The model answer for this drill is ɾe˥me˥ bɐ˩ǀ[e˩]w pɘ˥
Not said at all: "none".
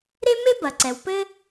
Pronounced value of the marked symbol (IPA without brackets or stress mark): ɛ˩